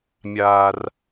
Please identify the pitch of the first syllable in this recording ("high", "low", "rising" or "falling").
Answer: low